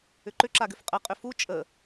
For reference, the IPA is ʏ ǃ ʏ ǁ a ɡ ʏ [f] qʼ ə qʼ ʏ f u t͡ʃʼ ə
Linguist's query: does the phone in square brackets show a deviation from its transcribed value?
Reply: no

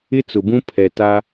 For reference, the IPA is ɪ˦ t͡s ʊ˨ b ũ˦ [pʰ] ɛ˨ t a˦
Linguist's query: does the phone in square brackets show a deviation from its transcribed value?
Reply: no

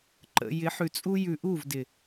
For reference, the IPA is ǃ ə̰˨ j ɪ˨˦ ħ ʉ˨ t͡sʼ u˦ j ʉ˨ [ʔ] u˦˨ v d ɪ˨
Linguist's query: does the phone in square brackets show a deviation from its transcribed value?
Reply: no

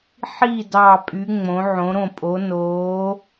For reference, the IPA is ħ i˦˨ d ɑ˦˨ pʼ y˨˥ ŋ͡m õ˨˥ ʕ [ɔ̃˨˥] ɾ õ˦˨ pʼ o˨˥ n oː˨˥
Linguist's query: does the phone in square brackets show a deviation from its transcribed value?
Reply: yes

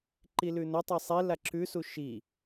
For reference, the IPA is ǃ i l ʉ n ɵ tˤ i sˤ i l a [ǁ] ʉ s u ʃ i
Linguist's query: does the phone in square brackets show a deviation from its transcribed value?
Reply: no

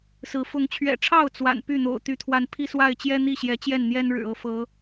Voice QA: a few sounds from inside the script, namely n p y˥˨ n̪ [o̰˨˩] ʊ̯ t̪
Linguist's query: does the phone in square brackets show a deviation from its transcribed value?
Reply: no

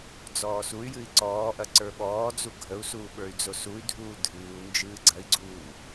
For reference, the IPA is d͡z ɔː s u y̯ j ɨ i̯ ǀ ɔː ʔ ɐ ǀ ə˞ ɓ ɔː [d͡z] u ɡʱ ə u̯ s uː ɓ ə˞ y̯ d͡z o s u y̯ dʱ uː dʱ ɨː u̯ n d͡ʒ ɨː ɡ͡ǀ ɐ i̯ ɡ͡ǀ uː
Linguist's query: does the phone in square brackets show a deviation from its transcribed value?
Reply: no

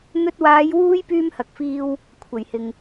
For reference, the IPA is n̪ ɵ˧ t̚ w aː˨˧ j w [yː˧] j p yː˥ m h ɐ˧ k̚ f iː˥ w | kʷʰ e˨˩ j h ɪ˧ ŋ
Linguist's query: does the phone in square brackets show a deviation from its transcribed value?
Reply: yes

